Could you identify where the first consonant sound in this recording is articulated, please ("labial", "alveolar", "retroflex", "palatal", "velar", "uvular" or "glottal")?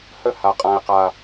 glottal